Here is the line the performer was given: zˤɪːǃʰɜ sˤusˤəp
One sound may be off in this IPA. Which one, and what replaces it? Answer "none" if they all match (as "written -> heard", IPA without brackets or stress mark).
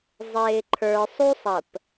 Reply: ɜ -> ə˞